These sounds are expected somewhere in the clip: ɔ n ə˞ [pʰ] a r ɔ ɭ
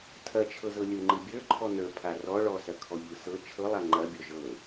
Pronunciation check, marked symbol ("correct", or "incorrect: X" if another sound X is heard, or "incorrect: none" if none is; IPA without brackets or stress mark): correct